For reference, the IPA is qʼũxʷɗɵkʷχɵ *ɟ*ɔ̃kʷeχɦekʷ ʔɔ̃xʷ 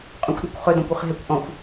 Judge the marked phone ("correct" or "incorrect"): incorrect